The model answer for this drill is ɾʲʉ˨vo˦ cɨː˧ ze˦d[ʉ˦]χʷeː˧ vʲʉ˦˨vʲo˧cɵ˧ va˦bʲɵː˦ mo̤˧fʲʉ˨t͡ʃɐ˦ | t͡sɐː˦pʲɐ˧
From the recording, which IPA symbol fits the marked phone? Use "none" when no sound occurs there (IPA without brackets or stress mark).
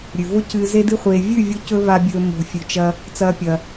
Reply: ɨ˦